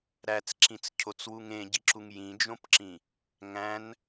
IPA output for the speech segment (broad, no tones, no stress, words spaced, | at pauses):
ɾæt͡sǁĩt͡scʰot͡swuŋ ẽɟiǁuŋ jĩd͡ʒõpǁĩ | ŋæ̃n